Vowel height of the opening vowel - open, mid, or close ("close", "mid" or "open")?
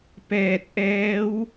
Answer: mid